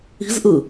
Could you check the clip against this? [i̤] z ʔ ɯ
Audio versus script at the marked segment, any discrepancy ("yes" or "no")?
no